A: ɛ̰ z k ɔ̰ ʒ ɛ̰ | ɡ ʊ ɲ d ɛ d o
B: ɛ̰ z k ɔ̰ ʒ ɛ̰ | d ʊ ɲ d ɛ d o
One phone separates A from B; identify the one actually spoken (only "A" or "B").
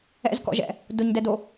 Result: B